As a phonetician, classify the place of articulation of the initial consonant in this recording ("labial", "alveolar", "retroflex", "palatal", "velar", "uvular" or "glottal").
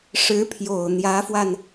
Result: retroflex